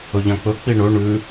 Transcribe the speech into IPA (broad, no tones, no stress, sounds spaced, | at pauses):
ɵ ʎ ã k͡p ɵ k͡p i ɳ ɵ ɳ ʉ